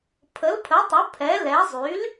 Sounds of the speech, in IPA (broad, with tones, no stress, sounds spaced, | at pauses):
pʰ ə˩˥ l pʰ ə˩˥ tˤ ə˩˥ pʰ ɛ˩˥ l ɛ˩˥ zˤ y˩˥ l